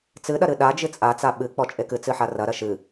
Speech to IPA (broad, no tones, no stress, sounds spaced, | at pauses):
t͡s ɨ ɗ ɐ ɾ ɨ ɗ a d͡ʒ ɨ t͡sʼ a t͡s a ɓ ɨ k͡p ɔ t͡ʃʼ e k ɨ t͡s ɨ ħ a r ɐ ɾ ɐ ʃ ɨ